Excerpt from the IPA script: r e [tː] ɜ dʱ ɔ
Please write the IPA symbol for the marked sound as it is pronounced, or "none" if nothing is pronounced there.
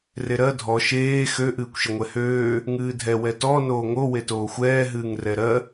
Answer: ɾ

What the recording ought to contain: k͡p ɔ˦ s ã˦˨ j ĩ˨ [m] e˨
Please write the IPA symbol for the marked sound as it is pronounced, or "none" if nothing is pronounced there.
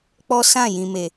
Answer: m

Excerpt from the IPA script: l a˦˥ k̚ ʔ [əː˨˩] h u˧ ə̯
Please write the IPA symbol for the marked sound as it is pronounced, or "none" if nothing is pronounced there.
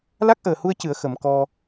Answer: əː˨˩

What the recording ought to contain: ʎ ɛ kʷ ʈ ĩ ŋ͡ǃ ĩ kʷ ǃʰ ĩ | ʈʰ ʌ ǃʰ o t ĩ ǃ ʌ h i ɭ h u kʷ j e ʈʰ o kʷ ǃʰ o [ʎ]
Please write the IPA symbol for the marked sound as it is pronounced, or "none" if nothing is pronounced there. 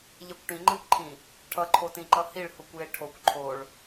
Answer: ɭ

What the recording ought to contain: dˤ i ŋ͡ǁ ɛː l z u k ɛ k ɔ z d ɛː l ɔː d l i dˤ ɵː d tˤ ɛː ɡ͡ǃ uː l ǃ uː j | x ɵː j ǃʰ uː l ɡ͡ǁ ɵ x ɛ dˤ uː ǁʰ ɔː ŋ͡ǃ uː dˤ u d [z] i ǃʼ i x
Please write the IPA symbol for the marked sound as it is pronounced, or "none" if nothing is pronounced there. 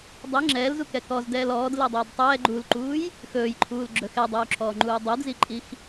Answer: z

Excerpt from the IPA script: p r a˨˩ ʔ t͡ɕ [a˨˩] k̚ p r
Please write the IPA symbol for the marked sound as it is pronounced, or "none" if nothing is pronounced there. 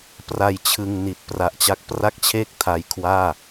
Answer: a˦˥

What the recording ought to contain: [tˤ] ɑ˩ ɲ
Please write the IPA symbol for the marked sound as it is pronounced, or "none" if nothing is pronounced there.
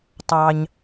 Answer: tˤ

